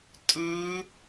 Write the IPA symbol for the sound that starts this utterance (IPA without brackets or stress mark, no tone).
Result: tʼ